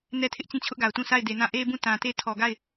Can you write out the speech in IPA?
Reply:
nɛ˦tʰɪ˦ʔt͡ɕĩ˦˨ t͡ɕʰʊ˦ʔɡa˨ʊ̯tũ˦˨ sʰa˦˨ɪ̯de˨nã˦˨ ʔe˦bũ˦˨ tã˨te˦˨ tʰɔ˨ɡa˦˨ɪ̯

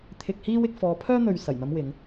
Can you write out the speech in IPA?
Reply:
t̪ʰɪ˧k̚hiː˥wɪ˧k̚ fɔː˨˧pʰœː˥n̪ɵ˨ɥ sɐ˨˩jn̪ɐ˨˧m wɪ˨˧ŋ

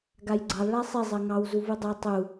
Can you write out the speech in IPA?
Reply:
ɡajɡ͡ǀɑlˠ ɭasˤi zˤɜŋɑw zuvudˤa tˤu

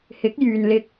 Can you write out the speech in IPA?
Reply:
hɪ˨˥k̚jyː˨nlɪ˧k̚

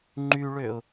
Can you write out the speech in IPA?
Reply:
ŋ͡ǃyɭøʊ̯

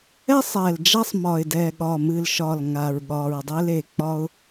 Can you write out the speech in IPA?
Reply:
ɛ˦sˤɛ˨˩l d͡ʒa˦sˤmɒ˨˩ɪ̯dɛ˨˩ ɠɒ˨˩mɨ˨˩lʃɒ˨˩l ŋa˨˩ɹɠɒ˨˩ɹdˤe˦le˨˩ k͡pɒ˦ʊ̯

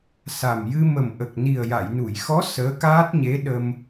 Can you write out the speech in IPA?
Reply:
sa˨˩mjɨ˧ mə˨˩mʔə˨˩k̚ ni˨˩ə̯ja˨˩˨jnu˨˩˨jxɔ˧˥ səː˧˥kaː˦˥t̚ɲe˧˥ ɗə˧m

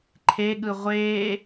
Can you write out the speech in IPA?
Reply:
ǃʰeɠɯ ʁʷeː

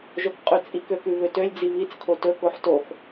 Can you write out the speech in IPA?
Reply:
ʒokqʼʉt͡sʼik økʉβøtølʲ d͡ziβit͡s kʰotɵ koħtox

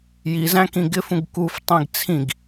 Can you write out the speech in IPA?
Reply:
jizæ̃ kĩɡɪfũɡ kuftˤĩɡ t͡sʰĩɡ

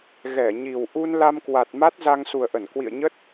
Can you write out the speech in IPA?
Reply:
ɣɛ˧˩ɲi˨˩w ʔu˧nla˧mkwa˨˩t̚ ma˦˥t̚ za˧ŋsu˨˩ə̯ʔə˧˩n kwḭ˧˨ə̯ɲə˦˥t̚

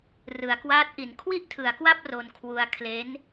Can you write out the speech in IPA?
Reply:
rɯ˩˦a̯kwaː˦˥t̚ʔi˩˦n kʰwi˥˩ʔtʰɯ˩˦a̯kwa˥˩p̚ ro˧nkʰwu˧a̯ kʰle˦˥n

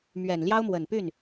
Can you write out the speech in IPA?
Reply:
mɥɛ˨˩nljɑ˥ʊ̯mwə˨˩npy˥˩n

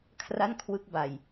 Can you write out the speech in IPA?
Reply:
kʰra˥˩nkʰwɯ˦˥k̚ ba˨˩j

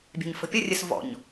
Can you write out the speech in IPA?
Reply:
bʲɛ̤ɲfə̤pʲərʲɘs vɔ̰ɲ

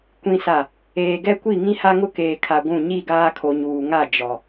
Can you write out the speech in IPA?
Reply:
kʷĩ˨sa˨ | eː˨ɡɛ˦kʷi˦˨ ŋĩ˦ha˦ŋʊ˦ keː˨kʰa˨ ɡʷũ˦˨ ɲi˦˨ɡaː˦kʰo˨ɲuː˨ ŋa˦˨ d͡ʒɔ˨

